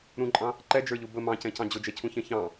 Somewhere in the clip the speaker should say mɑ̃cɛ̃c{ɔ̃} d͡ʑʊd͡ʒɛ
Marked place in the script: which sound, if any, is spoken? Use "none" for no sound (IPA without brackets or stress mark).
ɑ̃